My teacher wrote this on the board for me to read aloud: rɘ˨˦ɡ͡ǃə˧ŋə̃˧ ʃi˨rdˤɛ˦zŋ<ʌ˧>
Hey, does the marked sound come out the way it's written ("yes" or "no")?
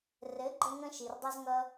no